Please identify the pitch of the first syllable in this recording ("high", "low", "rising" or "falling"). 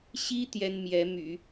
high